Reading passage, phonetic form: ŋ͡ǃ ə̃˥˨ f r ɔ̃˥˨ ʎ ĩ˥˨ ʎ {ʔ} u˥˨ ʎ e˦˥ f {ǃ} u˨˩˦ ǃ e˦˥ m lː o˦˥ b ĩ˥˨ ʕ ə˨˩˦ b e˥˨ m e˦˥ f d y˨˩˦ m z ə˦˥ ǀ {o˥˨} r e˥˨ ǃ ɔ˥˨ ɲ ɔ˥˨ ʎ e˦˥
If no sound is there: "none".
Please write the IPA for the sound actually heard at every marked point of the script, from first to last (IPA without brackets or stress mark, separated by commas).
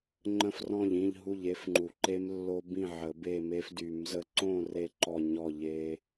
ɦ, ŋ͡ǃ, õ˥˨